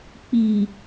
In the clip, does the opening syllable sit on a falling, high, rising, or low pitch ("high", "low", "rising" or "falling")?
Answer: low